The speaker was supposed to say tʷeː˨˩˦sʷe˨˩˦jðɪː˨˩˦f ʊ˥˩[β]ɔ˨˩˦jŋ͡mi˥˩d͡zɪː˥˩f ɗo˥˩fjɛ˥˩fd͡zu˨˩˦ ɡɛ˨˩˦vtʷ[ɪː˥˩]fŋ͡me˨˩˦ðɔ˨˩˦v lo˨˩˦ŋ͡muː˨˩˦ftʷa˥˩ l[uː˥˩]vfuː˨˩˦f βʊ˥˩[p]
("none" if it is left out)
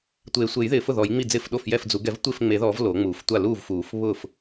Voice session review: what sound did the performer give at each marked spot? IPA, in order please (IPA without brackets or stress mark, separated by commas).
ð, ɪː˥˩, uː˥˩, f